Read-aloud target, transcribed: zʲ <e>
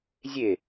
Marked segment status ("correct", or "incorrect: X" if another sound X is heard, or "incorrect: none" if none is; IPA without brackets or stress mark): correct